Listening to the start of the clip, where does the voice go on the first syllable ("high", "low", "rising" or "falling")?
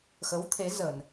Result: rising